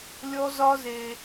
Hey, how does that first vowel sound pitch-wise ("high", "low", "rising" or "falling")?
high